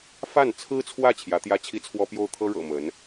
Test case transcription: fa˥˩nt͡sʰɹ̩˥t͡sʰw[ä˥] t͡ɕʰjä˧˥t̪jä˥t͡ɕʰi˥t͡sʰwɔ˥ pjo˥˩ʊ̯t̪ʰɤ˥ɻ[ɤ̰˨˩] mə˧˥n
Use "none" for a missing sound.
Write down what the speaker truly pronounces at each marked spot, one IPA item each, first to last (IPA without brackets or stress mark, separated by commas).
ä˥˩, ɤ̰˨˩